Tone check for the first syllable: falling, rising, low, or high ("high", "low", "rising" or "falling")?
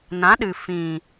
rising